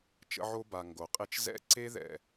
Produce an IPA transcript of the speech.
t͡ʃ ə̰˦ ʕ o˦ b a˨ ŋ ɡ o˩ qʼ e˥ t͡ʃ z ɛ̰˥ ǀ e˥ ð ɛ̰˩

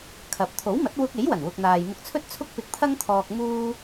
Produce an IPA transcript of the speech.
kʰ ɐ˨ p̚ t̪ʰ o˨˥ w m ɐ˨˥ t̚ w ʊ˧ k̚ e˨˥ j w ɐ˨˩ n w ʊ˨ k̚ n̪ aː˨ j m ʊ˧ k̚ t͡sʰ ɵ˥ t̚ t͡sʰ ʊ˥ k̚ p ɪ˧ k̚ t̪ʰ ɐ˥ ŋ t̪ʰ ɔː˧ k̚ m uː˥

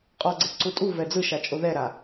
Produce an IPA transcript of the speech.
qʼ ɔ ɡ͡ǀ e ǀ u tʼ u v ɛ d͡z ɯ ʃ a t͡ʃʼ o ð ɛ ɾ a

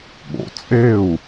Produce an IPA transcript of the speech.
ɠ o̰˨ t͡sʼ e˦˨ u̯

